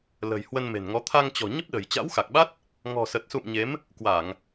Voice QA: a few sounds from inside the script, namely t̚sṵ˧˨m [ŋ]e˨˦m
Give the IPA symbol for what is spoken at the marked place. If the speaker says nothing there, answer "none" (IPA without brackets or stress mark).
ɲ